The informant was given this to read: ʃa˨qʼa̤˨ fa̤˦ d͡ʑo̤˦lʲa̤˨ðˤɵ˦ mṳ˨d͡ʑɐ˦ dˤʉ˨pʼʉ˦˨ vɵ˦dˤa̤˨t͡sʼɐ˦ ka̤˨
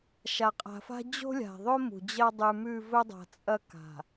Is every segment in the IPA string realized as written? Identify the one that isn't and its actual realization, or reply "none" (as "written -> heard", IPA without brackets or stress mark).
pʼ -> m